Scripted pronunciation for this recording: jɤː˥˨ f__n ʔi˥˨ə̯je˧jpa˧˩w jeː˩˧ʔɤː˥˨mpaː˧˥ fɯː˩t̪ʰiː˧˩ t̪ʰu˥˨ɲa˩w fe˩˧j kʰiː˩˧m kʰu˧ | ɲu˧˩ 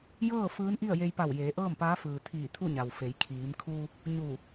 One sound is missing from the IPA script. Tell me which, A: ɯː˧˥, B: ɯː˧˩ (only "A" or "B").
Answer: A